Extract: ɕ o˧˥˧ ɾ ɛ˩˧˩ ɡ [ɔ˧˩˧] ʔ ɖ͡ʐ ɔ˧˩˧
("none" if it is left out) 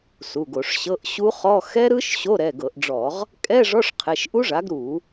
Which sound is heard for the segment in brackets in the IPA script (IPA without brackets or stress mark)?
ɤ˧˩˧